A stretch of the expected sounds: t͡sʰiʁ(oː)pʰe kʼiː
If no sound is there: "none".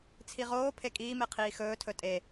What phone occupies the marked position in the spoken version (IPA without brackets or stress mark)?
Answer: oː